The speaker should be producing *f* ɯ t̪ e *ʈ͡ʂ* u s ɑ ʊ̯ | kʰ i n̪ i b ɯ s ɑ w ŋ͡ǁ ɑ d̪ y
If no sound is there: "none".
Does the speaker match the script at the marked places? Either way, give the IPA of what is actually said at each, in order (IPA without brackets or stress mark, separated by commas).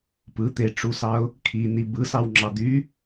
p, ʈ͡ʂ